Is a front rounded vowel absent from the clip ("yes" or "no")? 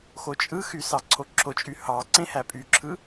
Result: no